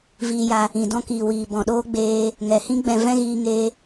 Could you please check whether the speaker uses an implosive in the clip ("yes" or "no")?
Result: yes